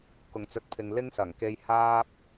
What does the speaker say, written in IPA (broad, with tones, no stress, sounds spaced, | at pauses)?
k ʊ˨˩ ŋ t͡s ɵ˨ t̚ pʰ ɪ˨ ŋ l ɪ˥ ŋ s ɐ˨˩ ŋ k e˧ j h aː˥ p̚